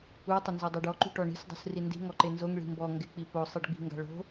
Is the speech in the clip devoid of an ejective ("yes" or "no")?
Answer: yes